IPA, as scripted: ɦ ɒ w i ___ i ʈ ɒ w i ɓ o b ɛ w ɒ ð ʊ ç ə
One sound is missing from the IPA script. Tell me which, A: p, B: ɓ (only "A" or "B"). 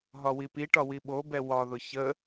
A